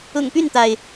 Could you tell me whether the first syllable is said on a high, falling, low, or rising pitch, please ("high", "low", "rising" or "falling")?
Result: low